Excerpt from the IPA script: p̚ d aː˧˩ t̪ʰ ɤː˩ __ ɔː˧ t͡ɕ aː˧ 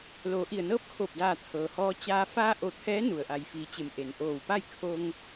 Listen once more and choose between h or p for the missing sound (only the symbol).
h